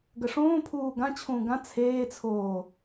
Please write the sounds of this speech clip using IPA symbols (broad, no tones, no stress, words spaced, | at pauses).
ɡəʂõːpʰuː ɡãt͡ɕʰũː ɡã t͡sʰeːt͡sʰoː